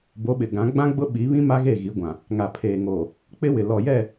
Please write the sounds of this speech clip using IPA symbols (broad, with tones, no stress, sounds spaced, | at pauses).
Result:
b o˨˦ ɓ ɪ˨ ɡ ã˨˦ ɡ͡b ã˦ ɡ͡b ʊ˦ ɓ i˨˦ β ĩ˦ m a˦ ɣ e˦˨ ɣ i˨˦ ɡʷ ã˨ | ŋ a˨ pʰ eː˨ ŋ oː˨ | k͡p ɪ˦ w ɪ˨ l ɔ˨ j ɛ˦˨